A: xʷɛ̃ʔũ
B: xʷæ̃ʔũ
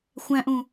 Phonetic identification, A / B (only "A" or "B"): B